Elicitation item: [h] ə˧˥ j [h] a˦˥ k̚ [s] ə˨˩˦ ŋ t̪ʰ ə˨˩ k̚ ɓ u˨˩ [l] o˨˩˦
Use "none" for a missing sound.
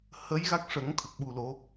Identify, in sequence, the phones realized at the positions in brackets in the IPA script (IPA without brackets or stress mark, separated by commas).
h, ɣ, ʂ, l